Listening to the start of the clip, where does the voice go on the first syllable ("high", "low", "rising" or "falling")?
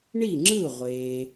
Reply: falling